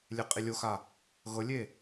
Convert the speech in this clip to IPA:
lʲ e qʼ i lʲ o x a | ɣ ɤ lʲ e

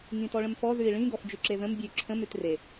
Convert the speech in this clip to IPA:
ŋ ĩ t ɔ ɭ ə̃ m f ɔ ð ʉ i̯ ɭ ĩ ɡ ɔ f d͡ʒ ʉ ǁ e ð ə̃ m bʲ ʉ ǁʰ ə̃ m ʉ t r e

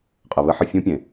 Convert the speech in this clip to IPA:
qʼ ɘ˨ β ɘ˦ ħ ə˧ fʲ ũ˦ pʲ ẽ˨

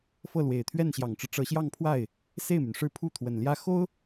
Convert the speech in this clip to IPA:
f ɤ˥˩ l w e˨˩ ɪ̯ t̪ʰ ɥ ɛ˥˩ n ɕ j ɑ˨˩ ŋ ʈ͡ʂ ɻ̩˦ ʈ͡ʂ ɤ˧˥ ɕ j ɑ˥˧ ŋ pʰ w a˥˩ ɪ̯ | s e˥˩ ɪ̯ m y˩ n ʂ ɻ̩˥˧ pʰ u˥˩ t̪ʰ w ə˨˩ n l j ä˥˩ x o˥ ʊ̯

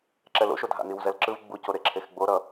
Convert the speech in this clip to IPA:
ǁ ɛ l o̰ ʃ o dʱ a̰ n i w z ɛ l ǁ ɯ v ɡ͡b u c o ɾ e ǁʰ e x ɡ͡b o ɾ ʌ

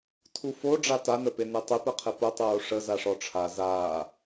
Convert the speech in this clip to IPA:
tʰ u f o ɖ͡ʐ a t a n ə p e n e tˤ e p ɘ qʰ ɘ p ʊ tˤ oː ʂ ə z a ʂ ɔ ʈ͡ʂʰ a z aː

